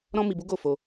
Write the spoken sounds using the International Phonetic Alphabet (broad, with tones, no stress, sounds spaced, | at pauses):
ɾ ɔ̃˦ m i˧ b u˦ ɡ o˦˨ f o˧